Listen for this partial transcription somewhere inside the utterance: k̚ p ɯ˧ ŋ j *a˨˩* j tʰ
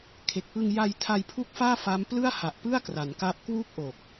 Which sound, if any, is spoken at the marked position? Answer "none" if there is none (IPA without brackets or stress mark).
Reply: a˧